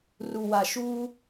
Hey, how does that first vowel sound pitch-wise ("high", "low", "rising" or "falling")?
low